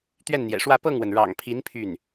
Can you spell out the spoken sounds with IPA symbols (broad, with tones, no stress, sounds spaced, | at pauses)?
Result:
t̪ ɥ ɛ˥˩ n n̪ j ɛ̰˨˩ ʂ w ä˥˧ p ɤ˥˩ ŋ w ə˩ n ɻ ɑ̰˨˩ ŋ pʰ i˧˥ n pʰ y˥˩ n